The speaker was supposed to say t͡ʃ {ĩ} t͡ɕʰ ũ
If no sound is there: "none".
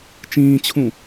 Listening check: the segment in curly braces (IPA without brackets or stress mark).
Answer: ĩː